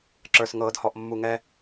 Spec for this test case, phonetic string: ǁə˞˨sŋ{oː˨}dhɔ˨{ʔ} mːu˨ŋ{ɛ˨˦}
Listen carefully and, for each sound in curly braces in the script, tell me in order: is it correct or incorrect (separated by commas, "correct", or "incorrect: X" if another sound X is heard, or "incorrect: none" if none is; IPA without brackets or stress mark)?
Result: incorrect: ɤː˨, correct, incorrect: ɛ˧